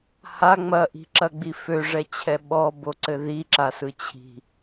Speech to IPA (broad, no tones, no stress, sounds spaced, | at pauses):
h a ŋ͡m ɐ ʔ i̤ ǁ ɐ ɡ͡b i f ø ʐ ɛ t͡ɕʰ ɛ ɓ ɔ b o ǀ ɘ ð i ǁ a s ɯ t͡ɕʰ i̤